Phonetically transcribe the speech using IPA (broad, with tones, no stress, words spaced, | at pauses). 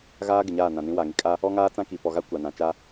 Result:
ɣaː˦ ɡɪ˨ɲaː˦˨nã˨nĩ˦ wa˨ŋi˦kʼa˦ | ɔ˦ŋaː˦t͡sã˦ ki˨ pɔ˨ɣa˦ kʷa˨nã˨ t͡ʃa˦